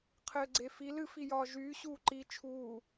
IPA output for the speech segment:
qʰ ɘː ɡ͡ǀ e f i l ɨ f i j ɒː ʒ yː ɕ uː ǃ i t͡ʃʰ uː

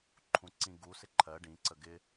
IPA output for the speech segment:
ǃʰ ũ ǀ ĩ ɡ u s ɪ ǃʰ ɜ ɖ ĩ ǀ ə ɡ ɪ

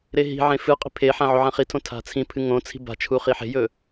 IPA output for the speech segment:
ɾ e ɦ i̤ ʕ ẽ f ɨ qʼ i̤ pʰ e ħ ã ʕ o ʕ ã χ i tʰ õ tʰ a̤ t͡sʰ ĩ pʰ ɨ ŋ õ t͡sʰ i̤ b a̤ t͡ʃʰ u χ i ħ e̤ j ɵ

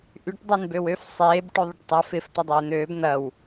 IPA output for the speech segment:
ʔ y ʈ dˤ e n b ø w ø f sˤ eː b ʈ ø ðˤ ɪ ʈ tˤ a f ɪ f t̪ ɐ dˤ eː n̪ øː b n̪ ɐ w

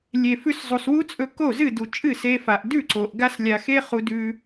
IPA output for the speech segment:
lʲ e˨ f ʉ˧ s zˤ u˨ s w u˦ t͡sʼ ɵ˧ k o˦˨ z ɨ˦˨ d u˨ t͡ʃʼ ɨ˦˨ s e˧ f a˨ ʔ d ʉ˦˨ ǀ o˨ ʔ ɡ a˦ s lʲ a˧ x e˦ χ u˧ d ʉ˧

